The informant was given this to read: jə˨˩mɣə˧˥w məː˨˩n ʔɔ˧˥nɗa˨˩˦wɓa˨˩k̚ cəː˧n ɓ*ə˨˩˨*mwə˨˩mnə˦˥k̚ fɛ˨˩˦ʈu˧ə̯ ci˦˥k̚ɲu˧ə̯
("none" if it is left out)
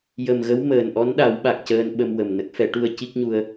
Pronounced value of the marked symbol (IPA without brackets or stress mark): ə˧